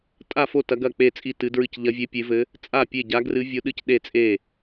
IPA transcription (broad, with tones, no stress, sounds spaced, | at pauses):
tʼ a˥˩ f o˥˩ t ɐ˧˥ ɡ ɐ˥˩ k͡p e˥˩ t͡sʼ i˥˩ t ɨ˧˥ d ɹ ɨ˥˩ c ʎ ɐ˧˥ vʲ e˧˥ pʲ e˧˥ v ɘ˧˥ | t͡sʼ a˥˩ pʲ e˥˩ ɟ a˧˥ ɡ r ɨ˧˥ vʲ o˧˥ ɗ ɨ˥˩ c ɗ e˥˩ t͡sʼ e˥˩